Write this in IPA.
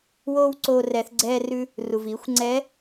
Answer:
w oː˥ w ǀ oː˧ r ɛ˩˧ θ ɡ͡ǀ ɛː˧ r ʉ˧ | r u˩ v iː˩˧ xʷ ŋ͡ǀ ɛː˧˥

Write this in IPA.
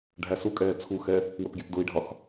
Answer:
ɖʱ æ s u kʼ ɛː t͡sʰ u x ɛ | w ə p ɡʲ ɛ p d ʊ i̯ ɖʱ ɒ x

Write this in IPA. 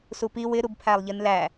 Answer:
s u p i w ɪ ɾ u b pʰ æ lˠ ʎ i n l æ

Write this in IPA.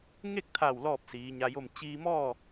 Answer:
ŋ e˥˨ k̚ t̪ʰ a˧˩ w l ɔː˥˨ p̚ s iː˩˧ ɲ a˧ j o˥˨ m t͡ɕ iː˧ m ɔː˥˨

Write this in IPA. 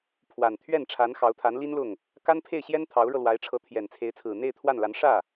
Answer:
pʰ w a˨˩ n t̪ʰ ɥ ɛ˥˩ n ʈ͡ʂʰ a˧˥ n x ɑ˧˥ ʊ̯ t̪ʰ a˧˥ n l i˥ n l ʊ˥˩ ŋ | k a˥ n pʰ e˥˩ ɪ̯ ɕ j ɛ˥ n t̪ʰ ɑ˧˥ ʊ̯ ɻ ɤ˧ l w a˧˥ ɪ̯ ʈ͡ʂʰ ɤ˧˥ t̪ʰ j ɛ˨˩ n t͡sʰ e˧˥ ɪ̯ t͡sʰ ɹ̩˨˩ n̪ e˥˧ ɪ̯ t̪ʰ w a˥˩ n l a˧˥ n ʂ ä˥˩

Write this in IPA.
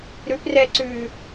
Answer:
ɾ ʉ p r ɛ ǀ ʉ

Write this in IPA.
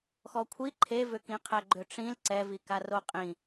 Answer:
x ɔ kʷʰ i ǃʰ e v ʏ k ĩ qʰ ɛ ɡ͡ǃ ʏ ʈ͡ʂ ĩ l ǀ ɛ v i k a r o qʼ ĩ

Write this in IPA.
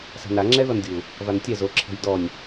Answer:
s a̤ n a ŋ͡ǁ ɛ ð ɔ n dʲ u | v a n tʲ ɛ z o ǁʰ ɛ̤ j d ɔ nʲ

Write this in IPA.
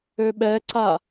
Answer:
ø ɓ ɛ ǀ a

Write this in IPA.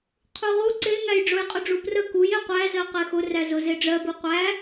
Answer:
qʰ u ʁ u ǀ e ŋ æ j ɖ͡ʐ ʊ j qʼ ʊ ɖ͡ʐ u p r ə k u j e qʷ æ z ɜ q e x ʊ r æ z ʊ z e ɖ͡ʐ ɜ b u qʷ æ

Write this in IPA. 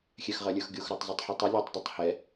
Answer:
xʲ ɛ x ʁ ʌ lʲ ə˞ x ɡʲ o x ɾ ə˞ tˤ z i tˤ ħ ʌ tˤ ʌ lʲ ʌ tˤ dˤ a tˤ h ɛ

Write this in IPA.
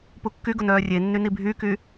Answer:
p u kː y ɡ ʊ n œː rʲ e nː y n i bʱ y k y

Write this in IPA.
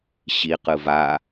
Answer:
ɕ i q ɯ v a

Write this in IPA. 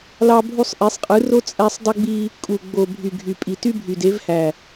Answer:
l ɑ˦ bʱ u˦ sˤ ʔ e˨˦ sˤ qʼ ɯ˨˦ r o˦ t͡sʼ æ˦ sˤ dˤ u˦ ɡ͡b i˦ | kʼ u˨ ɡ͡b o˨ bʱ y˨ ɡʱ y˨ pʼ i˨ t y˦ bʱ y˨ d e˨˦ v h æ˨

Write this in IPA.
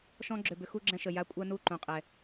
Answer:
ʃ ɔ̃˦ ɡ͡ǁ ø˨ b ʏ˧ x u˦ ɡ͡ǁ ɛ̃˧ ʃ ə˨ j a˦ kʷʼ ɜ˦ n u˦˨ ǃ ũ˨ qʼ ɛ˨

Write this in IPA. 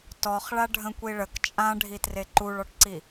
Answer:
t ɔ χ ɭ a ɖʱ ə̃ kʷ i ɭ ə k t͡ʃʼ ã ɖʱ i t r e ǃ u ɭ ɔ ʈ ǀ i

